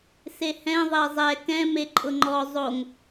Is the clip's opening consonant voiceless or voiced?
voiceless